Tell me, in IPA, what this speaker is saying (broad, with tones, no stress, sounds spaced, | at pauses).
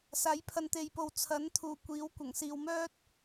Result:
s aː˨˥ j pʰ ɐ˨˧ n t̪ e˨ j p o˨ w t͡sʰ ɐ˨˥ n t̪ʰ uː˨˩ kʷ iː˨˥ w kʷ ɐ˨˩ ŋ s iː˨ w m œː˥ t̚